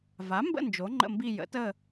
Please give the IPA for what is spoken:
v a˩˥ m b ə̰˦˨ n d͡ʒ o˩˥ ŋ͡ǃ ə̰˦˨ m b i˦˨ j ə̰˩˥ t ə˦˨

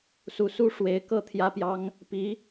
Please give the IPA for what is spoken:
s u˨˩ s u˥ ʂ w e˧˥ ɪ̯ k ɤ˥˩ t̪ʰ j ä˥ p j ɑ˥ ŋ | p i˧˥

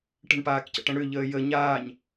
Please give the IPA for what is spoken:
ʈ ə̤ ɳ p aː k c ə̰ ʈ ə̃ ɽ ʏ ʎ əː j ə ɲ aː ɲ

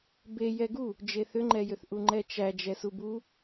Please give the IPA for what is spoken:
b e j ɛ ɡ u | d͡ʒ e θ ʏ ŋ͡ǃ ɛ j ʏ θ ʔ u ŋ͡ǃ ɛ t͡ʃ æ d͡ʒ ɛ s u b u

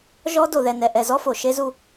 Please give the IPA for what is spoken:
ʒ ɔ˦ d o˨ ð ɛ˨ n ɛ˨ ʔ ɛ˨ z ɔ˦ f o˨ ʃ e˦ z u˦

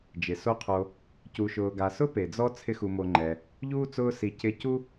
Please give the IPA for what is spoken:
d͡ʒ ɪ˩ s o˦ qʰ o˨ | c u˨ ʃ ʊː˨ ɡ a˨ s ʊ˥ p e˩ d͡z ɔ˦ t͡sʰ ɪ˦ x u˨ m o˨ ŋ͡ǃ ɛ˩ | ʎ uː˥ t͡s ʊː˦ s i˨ c ɪ˦ c u˥

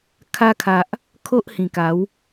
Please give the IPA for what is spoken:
kʰ a˧ kʰ a˨ ʔ | kʰ o˦ ʔ h ĩ˨˩ k a˨˦ w

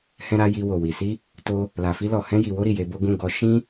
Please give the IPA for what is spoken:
h ɛ̃˦ ɾ a˦ j i˧ w o˨ w i˨ s i˧ | t o˧ | l a˨ f i˧ l ɔ˨ h ɛ̃˧ j i˨ w o˧ ɾ i˨ j e˧ b o˦ ɡ ũ˦˨ ɡ ɔ˧ ʃ ĩ˧

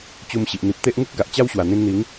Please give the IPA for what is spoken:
t͡ɕ u˧ m ɕ i˨ ʔ n̪ i˨ p̚ t̪ e˦ ʔ ŋ u˦ k̚ ɡ a˨ ʔ t͡ɕ a˦ w ɕ w a˨˩ n̪ ĩ˧ n n̪ i˨˦ ŋ

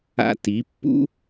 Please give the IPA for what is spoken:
a̰˧ t i˨˦ pː ṵ˦

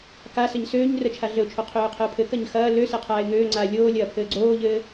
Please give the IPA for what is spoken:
k a s ɘ ɲ s øː ɲ r ə t͡ʃʰ a ɮ ɘ ʊ̯ t͡ʃʰ o qʰ øː qʰ ɘ ʊ̯ pʰ ɘ k ɐ ɲ x ɐː l ø s ɘ qʰ aː ɪ̯ ŋ øː ŋ͡ǀ aː lʲ oː lʲ ɐː pʰ ɘː ɡ͡ǀ oː ʎ ɘː

